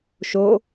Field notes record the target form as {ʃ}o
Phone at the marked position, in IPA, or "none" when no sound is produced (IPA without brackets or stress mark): ʃ